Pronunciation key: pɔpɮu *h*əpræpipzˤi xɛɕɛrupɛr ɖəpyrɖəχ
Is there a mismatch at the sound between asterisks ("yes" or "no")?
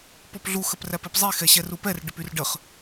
yes